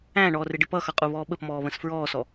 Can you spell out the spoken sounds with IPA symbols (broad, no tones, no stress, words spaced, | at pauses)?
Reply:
æ̃ɳɔːrɪɖɪ pʌxʌqʼuβɔː ɓəpmɔːβə̃s fɹɔːsɔ